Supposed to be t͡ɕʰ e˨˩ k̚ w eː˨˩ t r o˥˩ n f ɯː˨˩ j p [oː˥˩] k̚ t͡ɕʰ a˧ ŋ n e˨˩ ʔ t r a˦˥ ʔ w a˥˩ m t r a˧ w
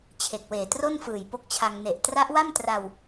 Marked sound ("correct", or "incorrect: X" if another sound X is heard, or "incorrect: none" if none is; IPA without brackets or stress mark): incorrect: o˥˩